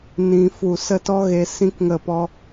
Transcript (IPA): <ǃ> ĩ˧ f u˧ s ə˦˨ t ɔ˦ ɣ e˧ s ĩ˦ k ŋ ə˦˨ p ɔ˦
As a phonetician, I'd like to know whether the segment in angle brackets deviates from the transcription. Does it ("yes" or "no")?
yes